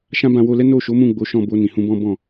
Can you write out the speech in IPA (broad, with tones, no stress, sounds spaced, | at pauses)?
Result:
ʃ ã˦ b ã˧ w o˧ l ɛ˦ n o˦˨ ʃ o˨˦ m ũ˦˨ ɡ͡b o˨˦ ʃ ɔ̃˦˨ b o˧ n ĩ˨ h ũ˧ b ɔ̃˦ b ɔ̃˦˨